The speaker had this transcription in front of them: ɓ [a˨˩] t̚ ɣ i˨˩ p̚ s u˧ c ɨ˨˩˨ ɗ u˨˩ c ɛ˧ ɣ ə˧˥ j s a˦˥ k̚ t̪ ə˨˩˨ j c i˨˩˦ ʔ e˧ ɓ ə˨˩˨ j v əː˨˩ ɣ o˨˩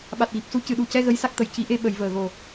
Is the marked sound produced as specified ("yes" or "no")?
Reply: yes